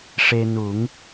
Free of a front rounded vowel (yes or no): yes